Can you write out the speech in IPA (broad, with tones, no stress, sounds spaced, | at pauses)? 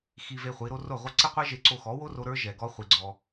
x i˧ v e˧ χʷ i˨˦ ɾ o˦ r o˦˨ ʁʷ ɐ˦ ǀ e˦ qʷ e˦ ʒ e˧ ǀ o˧ x ɔ˨˦ w o˦ r o˧ ɾ ə˞˦ ʒ ɛ˨ ɡ ɔ˦ χʷ i˧ ɡ͡ǀ ɔ˧